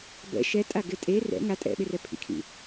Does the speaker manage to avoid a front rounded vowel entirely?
yes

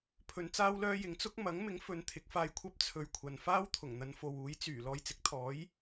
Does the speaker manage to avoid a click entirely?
yes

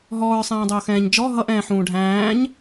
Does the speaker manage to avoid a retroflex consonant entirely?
no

